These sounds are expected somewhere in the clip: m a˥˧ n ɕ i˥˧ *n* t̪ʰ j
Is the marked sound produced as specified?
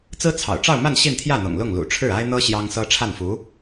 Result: yes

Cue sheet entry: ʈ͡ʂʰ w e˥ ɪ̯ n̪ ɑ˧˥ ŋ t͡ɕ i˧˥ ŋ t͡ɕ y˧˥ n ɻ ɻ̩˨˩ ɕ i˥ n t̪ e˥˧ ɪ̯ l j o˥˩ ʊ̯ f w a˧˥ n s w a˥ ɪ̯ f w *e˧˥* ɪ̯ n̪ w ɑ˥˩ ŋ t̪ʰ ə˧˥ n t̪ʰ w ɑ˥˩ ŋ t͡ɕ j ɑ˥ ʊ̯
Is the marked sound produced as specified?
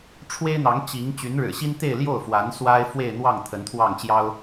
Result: no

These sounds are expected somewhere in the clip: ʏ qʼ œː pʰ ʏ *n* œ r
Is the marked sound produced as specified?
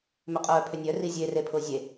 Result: no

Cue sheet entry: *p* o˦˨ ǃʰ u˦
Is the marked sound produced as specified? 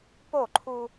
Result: yes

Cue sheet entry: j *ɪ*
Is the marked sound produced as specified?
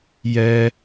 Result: no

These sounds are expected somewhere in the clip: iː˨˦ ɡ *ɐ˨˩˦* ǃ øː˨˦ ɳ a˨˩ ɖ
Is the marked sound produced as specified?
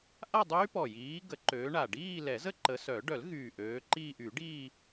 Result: no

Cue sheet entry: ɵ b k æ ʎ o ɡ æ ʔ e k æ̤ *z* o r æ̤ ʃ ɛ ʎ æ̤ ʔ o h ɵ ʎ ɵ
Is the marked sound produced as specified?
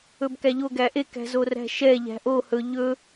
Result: yes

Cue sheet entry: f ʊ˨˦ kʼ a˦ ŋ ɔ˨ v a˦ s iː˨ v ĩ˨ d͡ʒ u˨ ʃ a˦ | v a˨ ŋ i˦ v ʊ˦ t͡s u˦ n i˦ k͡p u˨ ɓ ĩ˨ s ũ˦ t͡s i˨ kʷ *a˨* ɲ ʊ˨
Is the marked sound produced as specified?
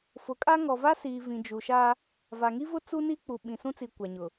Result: yes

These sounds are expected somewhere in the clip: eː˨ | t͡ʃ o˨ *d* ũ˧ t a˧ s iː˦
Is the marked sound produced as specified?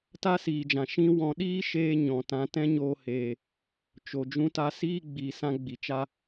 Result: no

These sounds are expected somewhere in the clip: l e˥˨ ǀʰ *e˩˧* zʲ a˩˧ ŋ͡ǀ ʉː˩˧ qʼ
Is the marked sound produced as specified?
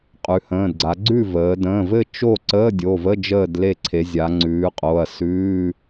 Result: yes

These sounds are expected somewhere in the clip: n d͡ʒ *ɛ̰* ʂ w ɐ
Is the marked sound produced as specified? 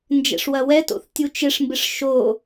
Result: yes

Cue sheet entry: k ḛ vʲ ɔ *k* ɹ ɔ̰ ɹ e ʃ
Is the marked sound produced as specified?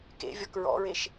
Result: yes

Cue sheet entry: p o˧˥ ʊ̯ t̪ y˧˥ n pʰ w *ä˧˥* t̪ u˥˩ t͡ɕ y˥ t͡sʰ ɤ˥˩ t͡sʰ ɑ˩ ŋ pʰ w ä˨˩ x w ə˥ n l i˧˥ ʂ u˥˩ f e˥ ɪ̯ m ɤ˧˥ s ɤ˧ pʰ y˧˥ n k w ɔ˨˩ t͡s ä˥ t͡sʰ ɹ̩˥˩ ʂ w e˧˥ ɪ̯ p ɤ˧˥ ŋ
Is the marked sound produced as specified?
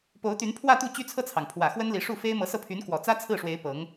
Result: no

